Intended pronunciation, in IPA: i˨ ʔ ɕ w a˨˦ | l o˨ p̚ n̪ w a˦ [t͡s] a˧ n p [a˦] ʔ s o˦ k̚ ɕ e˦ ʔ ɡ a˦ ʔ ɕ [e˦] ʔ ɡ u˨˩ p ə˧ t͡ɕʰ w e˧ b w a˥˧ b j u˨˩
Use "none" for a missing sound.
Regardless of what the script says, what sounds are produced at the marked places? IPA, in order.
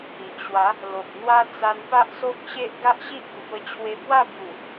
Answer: t͡s, a˦, i˦

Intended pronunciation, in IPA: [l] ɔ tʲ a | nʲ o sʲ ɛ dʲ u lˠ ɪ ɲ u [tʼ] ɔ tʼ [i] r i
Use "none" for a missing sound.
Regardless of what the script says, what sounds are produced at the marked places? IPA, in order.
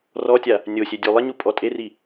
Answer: r, pʼ, e

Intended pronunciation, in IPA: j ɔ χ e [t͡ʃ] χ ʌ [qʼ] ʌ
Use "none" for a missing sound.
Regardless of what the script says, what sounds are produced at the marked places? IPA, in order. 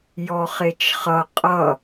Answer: t͡ʃ, qʼ

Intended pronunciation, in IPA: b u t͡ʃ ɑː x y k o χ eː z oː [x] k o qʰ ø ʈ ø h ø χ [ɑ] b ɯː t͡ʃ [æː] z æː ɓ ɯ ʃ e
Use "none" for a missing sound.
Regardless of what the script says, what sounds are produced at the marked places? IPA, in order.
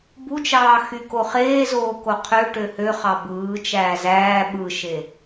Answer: none, ɑ, æː

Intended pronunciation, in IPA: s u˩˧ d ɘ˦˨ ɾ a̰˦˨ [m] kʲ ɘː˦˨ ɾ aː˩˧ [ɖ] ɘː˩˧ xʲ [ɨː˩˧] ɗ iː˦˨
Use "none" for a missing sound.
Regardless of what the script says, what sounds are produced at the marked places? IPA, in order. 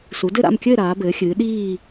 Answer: m, b, ɨː˩˧

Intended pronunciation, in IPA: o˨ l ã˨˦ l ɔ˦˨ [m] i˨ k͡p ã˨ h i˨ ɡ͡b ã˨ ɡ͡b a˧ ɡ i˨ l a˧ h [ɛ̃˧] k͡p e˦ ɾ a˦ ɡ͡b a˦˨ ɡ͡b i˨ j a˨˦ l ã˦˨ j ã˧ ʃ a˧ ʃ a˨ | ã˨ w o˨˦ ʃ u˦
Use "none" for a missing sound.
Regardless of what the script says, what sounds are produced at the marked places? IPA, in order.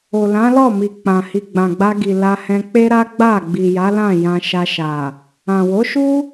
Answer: m, ɛ̃˧

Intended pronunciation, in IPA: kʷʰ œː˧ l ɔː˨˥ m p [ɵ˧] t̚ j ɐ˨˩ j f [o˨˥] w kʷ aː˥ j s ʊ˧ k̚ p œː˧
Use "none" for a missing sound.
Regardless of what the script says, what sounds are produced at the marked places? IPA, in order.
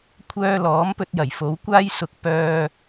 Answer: ɵ˧, o˨˥

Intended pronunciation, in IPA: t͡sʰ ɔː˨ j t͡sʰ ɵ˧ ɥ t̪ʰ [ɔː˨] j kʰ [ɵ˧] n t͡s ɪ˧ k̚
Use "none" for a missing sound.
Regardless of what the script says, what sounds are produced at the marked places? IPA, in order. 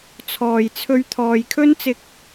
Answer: ɔː˨, ɵ˥

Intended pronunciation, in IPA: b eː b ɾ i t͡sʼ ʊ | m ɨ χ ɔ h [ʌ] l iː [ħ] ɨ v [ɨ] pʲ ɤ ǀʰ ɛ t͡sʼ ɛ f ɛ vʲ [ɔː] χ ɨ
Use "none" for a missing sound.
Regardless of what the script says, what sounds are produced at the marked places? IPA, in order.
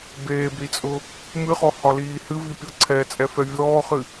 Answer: ɒ, h, i, ɔː

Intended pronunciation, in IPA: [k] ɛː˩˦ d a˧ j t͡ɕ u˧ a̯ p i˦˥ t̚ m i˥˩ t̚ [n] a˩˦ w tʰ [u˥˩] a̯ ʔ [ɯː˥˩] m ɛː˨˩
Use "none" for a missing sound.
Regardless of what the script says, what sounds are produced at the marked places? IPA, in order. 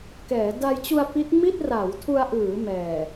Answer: k, r, u˧, ɯː˩˦

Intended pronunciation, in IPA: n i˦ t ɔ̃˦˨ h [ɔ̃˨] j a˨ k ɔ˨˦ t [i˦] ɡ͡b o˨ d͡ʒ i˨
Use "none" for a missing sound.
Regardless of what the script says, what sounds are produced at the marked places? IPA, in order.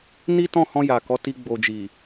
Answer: ɔ̃˧, i˧

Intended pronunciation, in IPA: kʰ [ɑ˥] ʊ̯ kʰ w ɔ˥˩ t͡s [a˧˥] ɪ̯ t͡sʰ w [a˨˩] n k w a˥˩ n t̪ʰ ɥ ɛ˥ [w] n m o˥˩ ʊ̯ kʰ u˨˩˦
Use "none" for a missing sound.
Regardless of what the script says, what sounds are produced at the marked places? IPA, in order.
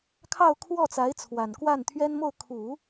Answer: ɑ˥˧, a˧˥, a˨˩, none

